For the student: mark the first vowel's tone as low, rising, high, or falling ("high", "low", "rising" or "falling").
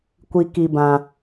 low